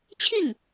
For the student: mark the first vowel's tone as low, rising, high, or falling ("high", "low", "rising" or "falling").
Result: falling